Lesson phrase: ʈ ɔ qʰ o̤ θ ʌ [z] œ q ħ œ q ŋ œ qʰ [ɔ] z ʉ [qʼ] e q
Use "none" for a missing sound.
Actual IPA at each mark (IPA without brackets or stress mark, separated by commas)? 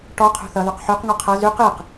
ð, ʌ, q